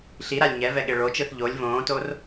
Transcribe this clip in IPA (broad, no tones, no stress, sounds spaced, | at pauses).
ɬ i ɾ a lʲ ɲ ɛ v ɛ ɠ e ɭ o t͡ʃ ɯ θ ʎ o lʲ v õː t o r